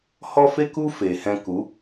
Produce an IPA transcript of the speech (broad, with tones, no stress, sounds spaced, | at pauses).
h ɔ˦ f e˦ k u˦ f eː˨ h ɛ̃˧ k u˨˦